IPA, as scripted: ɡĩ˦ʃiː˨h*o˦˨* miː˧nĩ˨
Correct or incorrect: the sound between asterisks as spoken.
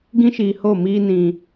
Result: correct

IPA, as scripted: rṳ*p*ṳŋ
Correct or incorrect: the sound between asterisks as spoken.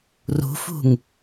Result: incorrect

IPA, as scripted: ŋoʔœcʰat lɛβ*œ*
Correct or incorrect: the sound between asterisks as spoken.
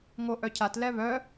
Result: correct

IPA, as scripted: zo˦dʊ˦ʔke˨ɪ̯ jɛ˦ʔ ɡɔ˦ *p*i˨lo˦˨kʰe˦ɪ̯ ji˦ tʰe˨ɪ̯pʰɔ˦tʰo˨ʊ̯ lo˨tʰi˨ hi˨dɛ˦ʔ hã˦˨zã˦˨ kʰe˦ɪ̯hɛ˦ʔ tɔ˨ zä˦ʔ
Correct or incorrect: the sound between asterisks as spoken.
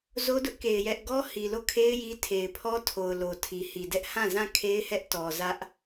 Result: incorrect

